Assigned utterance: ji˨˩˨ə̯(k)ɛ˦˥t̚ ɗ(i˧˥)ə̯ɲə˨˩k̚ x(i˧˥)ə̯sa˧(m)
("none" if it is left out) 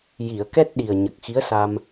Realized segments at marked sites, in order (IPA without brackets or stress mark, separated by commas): k, i˨˩, i˧˥, m